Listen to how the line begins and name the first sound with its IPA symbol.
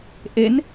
ʔ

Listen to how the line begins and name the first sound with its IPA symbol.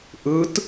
ʔ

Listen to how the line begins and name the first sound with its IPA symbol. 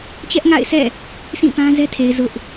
t͡ɕ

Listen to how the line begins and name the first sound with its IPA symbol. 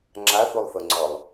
ŋ͡ǁ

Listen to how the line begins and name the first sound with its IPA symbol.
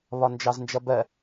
β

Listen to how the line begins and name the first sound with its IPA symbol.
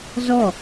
z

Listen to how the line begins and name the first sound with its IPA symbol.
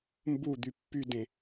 m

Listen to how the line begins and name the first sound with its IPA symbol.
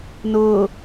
n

